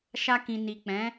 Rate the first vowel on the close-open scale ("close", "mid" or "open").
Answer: open